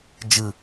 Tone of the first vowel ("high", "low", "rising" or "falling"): low